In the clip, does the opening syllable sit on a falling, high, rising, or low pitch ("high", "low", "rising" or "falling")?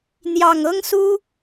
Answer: low